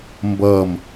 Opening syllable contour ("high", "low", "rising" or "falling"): falling